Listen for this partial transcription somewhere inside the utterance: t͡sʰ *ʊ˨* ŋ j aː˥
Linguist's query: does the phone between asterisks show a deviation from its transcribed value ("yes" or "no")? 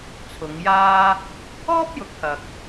yes